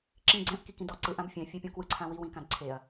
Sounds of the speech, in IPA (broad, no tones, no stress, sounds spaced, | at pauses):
ǁ ĩ ɡ͡ǀ ɛ̃ ʔ k i k ĩ d ɔ ǀ ɯ ʔ ã b fʲ ɛ̃ fʲ ɛ pʲ õ k w ɯ ǀʰ ã w i w ĩ k ã d ǀʰ e ɐ̯